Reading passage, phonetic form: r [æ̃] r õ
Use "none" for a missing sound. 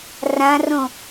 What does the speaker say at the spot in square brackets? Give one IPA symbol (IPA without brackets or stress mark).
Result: ã